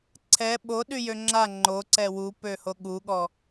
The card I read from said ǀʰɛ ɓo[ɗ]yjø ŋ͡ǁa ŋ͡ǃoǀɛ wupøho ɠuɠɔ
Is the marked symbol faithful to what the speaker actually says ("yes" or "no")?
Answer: yes